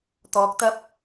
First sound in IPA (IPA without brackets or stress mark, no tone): t̪